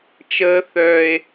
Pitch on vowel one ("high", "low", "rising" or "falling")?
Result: high